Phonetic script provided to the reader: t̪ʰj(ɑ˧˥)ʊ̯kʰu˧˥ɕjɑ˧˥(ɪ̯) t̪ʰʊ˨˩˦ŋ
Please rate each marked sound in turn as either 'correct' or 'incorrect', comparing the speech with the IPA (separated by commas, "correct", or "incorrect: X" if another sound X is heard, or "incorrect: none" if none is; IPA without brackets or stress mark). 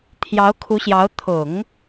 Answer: correct, incorrect: ʊ̯